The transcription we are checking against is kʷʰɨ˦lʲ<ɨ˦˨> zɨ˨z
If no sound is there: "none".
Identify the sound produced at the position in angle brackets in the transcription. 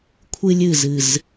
ɨ˦˨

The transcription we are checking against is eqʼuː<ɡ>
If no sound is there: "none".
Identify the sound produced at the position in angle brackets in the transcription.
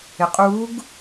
ɡ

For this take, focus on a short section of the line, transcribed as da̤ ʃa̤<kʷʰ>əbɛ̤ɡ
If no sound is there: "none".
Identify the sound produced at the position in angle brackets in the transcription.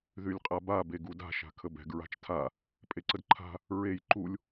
kʰ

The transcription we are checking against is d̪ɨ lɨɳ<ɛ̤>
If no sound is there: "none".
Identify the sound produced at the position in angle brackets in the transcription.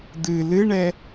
ɛ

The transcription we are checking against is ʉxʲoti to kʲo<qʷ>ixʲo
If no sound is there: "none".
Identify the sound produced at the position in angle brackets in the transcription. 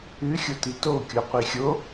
qʷ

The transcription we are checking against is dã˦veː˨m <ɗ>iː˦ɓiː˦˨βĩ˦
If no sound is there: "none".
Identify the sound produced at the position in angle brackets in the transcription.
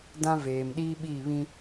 ɗ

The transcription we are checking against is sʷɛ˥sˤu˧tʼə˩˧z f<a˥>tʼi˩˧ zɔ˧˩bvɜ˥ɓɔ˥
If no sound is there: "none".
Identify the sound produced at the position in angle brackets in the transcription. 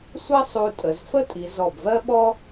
ə˥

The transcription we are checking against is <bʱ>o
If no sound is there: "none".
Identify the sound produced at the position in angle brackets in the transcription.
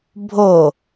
bʱ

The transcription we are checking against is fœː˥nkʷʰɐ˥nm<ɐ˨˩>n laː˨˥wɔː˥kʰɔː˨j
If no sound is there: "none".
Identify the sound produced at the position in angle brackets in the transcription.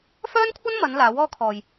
ɐ˨˧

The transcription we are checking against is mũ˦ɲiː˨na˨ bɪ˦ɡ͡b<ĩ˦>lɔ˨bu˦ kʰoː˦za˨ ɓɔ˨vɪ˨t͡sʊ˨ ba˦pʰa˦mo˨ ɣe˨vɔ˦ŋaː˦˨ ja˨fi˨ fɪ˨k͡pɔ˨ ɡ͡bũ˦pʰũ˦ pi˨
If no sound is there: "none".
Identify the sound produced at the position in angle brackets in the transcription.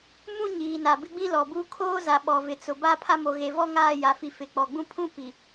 ĩ˦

